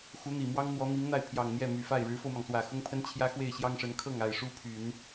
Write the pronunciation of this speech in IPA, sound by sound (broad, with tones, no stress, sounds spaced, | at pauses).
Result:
x u˧˥ n̪ i˨˩ m w ɑ˥ ŋ n̪ w ɔ˧˥ n̪ i˧˥ ŋ n̪ a˥˩ ɪ̯ pʰ j ɑ˨˩ ŋ n̪ j ɛ˥˩ m y˨˩ f a˥˩ ɪ̯ ɻ ɻ̩˧˥ f o˧ ʊ̯ m ɑ˩ ŋ s w ä˨˩ x ʊ˥ ŋ pʰ ə˥ n t͡ɕʰ j ä˥ x w e˥˩ ɪ̯ ɕ j ɑ˥ ŋ ʂ ə˧˥ n kʰ ɤ˥˩ ŋ a˨˩ ɪ̯ ʂ u˥ pʰ y˨˩˦ n